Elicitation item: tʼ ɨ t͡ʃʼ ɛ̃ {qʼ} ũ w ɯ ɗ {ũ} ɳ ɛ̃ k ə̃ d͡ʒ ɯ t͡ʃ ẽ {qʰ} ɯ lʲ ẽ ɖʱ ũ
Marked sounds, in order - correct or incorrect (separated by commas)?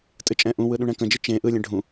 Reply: incorrect, correct, incorrect